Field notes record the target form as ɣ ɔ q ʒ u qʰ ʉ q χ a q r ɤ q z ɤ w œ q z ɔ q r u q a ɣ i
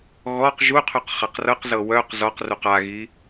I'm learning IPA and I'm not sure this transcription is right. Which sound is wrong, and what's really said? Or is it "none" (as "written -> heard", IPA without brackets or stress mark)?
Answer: none